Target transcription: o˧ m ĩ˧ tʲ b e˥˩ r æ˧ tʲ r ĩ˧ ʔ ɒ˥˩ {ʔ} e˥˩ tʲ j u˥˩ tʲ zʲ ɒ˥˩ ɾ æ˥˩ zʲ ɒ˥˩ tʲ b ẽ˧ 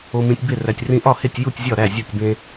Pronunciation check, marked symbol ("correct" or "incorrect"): incorrect